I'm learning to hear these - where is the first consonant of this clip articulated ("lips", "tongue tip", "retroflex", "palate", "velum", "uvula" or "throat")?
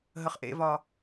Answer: throat